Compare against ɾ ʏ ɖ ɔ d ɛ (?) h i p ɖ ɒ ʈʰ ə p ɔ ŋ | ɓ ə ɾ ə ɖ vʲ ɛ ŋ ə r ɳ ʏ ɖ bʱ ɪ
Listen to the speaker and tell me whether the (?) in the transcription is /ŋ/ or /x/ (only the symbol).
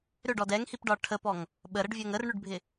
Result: ŋ